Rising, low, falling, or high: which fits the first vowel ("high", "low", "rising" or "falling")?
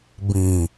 low